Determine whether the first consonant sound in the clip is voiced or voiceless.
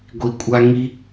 voiced